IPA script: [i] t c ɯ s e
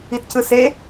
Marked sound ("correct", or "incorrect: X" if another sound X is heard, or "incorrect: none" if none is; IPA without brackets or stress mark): correct